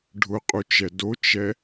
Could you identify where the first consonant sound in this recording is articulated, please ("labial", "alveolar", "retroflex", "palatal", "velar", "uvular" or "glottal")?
retroflex